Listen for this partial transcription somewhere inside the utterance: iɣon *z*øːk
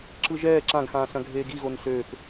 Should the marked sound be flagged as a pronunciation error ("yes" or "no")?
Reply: yes